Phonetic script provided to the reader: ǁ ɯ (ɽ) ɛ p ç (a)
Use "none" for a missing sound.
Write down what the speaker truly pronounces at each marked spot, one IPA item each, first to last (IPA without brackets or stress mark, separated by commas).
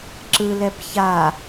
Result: l, a